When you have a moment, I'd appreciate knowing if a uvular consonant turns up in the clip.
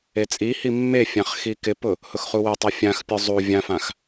yes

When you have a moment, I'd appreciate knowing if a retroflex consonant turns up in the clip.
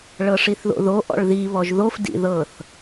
yes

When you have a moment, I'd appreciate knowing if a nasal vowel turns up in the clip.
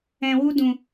yes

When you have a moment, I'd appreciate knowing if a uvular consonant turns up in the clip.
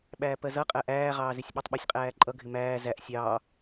yes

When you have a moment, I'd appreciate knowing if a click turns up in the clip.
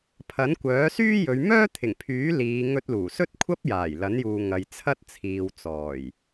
no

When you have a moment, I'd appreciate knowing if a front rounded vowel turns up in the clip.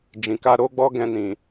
no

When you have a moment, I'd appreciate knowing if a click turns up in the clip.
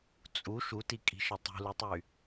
no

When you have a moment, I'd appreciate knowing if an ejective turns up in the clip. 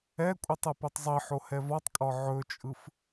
yes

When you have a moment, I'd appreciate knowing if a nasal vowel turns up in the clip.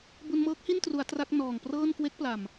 no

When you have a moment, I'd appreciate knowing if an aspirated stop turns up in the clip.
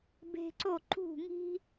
no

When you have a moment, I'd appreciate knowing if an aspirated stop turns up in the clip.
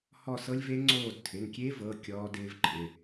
yes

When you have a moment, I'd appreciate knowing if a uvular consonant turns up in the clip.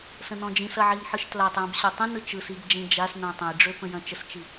no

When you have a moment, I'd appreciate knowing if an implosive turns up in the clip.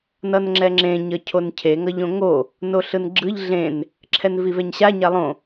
no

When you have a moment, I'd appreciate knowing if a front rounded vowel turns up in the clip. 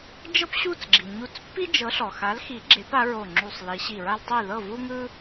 no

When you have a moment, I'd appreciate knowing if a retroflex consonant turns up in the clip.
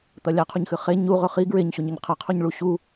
yes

